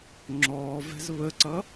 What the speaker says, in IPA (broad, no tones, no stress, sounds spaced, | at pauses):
ŋ͡ǁ ɔː v ɛ̤ z β ə ǀ ʌ